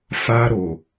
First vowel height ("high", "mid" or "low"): low